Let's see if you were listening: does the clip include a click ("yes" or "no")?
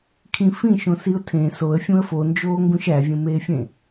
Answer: no